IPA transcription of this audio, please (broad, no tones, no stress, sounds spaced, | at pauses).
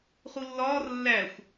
χ u lː ɒː r lː æ xʷ